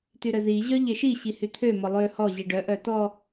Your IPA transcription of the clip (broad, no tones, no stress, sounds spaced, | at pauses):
t y ɾ œ z i ʑ œ ʎ e ʃ i ɕ i h y t̪ʰ ø m ɔ lˠ ø h ɔ ʑ i ɖ œ ʔ œ t ɔ